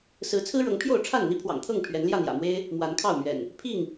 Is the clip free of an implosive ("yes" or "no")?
yes